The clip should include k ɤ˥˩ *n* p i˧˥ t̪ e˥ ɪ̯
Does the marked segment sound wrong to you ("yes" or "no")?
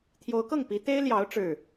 yes